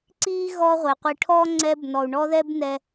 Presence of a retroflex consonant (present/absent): present